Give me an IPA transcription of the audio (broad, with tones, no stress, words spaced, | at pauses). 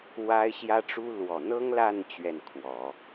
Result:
wa˥ɪ̯ ɕjä˥ʈ͡ʂu˥ lwɔ˨˩n̪ɤ˥ŋla˥˧n t͡ɕɥɛ˥˩nkʰwɔ˨˩˦